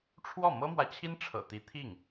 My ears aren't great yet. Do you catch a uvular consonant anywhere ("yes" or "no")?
no